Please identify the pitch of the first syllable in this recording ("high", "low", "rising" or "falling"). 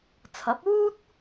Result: rising